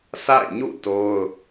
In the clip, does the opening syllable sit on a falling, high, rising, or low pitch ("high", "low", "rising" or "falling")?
falling